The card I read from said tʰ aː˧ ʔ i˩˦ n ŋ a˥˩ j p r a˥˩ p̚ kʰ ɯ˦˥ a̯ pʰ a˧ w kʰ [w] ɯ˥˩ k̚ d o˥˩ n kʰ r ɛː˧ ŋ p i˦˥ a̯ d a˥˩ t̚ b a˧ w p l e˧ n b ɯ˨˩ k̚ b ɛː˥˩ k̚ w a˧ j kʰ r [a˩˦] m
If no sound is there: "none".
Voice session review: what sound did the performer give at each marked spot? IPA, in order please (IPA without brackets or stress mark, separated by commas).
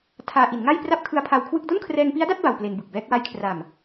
w, a˨˩